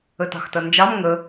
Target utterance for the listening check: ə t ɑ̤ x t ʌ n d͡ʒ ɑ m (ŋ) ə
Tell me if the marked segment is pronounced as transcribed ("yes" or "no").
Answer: yes